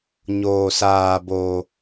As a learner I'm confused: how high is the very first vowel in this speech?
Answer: mid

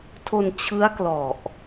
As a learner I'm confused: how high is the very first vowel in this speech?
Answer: mid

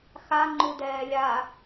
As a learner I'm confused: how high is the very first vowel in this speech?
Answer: low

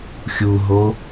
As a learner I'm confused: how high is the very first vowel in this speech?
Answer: high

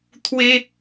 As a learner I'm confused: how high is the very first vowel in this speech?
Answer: mid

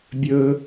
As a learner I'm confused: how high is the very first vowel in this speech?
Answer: mid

